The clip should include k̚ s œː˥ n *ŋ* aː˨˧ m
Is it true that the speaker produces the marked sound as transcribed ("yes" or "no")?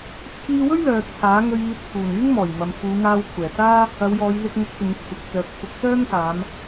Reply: no